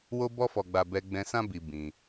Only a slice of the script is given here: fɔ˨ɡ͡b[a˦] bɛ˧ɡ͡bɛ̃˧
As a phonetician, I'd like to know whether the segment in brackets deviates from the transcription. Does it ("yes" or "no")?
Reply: yes